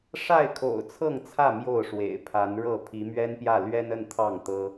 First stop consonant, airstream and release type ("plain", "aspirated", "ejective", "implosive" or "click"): aspirated